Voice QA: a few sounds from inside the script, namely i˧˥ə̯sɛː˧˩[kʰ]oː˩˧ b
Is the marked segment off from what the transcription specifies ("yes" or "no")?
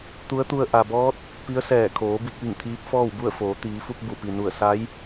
no